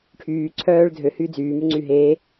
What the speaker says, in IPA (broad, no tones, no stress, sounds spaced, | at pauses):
ʈʰ yː ǀʰ œː ɭ dʱ ø h yː d͡z yː m y ŋ͡ǀ y ɦ e